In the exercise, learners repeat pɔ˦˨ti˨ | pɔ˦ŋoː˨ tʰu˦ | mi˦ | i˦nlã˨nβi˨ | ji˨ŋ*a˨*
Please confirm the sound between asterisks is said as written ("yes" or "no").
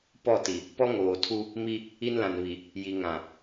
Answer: no